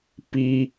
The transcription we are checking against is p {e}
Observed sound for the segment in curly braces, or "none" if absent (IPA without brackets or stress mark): i